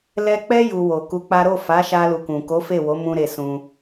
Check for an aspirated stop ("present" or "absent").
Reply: absent